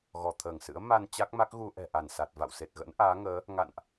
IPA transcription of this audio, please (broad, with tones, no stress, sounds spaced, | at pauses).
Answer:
ɣ ɔ˧˩ t̪ʰ əː˧˩ ŋ s ɨ̰˧˥ ə̯ m a˧ n t͡ɕ a˦˥ k̚ m a˦˥ k̚ ɣ u˧ ʔ ɛ̤˨˩ ʔ a˧˩ n s a˨˩ t̚ v a̰˧˨ w s e˨˩ t̚ ɣ ə̰˧˥ n ʔ aː˨˦ ŋ əː˨˦ | ŋ a̰˧˨ n ʔ